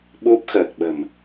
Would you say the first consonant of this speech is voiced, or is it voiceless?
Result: voiced